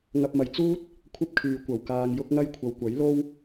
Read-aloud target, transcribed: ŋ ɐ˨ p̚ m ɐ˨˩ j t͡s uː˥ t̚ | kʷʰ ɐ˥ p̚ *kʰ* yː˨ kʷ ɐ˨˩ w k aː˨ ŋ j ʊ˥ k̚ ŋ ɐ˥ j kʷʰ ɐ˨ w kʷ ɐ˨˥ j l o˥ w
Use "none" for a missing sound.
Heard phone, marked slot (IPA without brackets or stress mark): kʰ